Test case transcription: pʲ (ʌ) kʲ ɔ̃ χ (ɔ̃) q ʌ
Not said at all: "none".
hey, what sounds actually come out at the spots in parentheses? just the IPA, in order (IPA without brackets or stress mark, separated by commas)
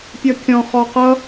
ʌ, ɔ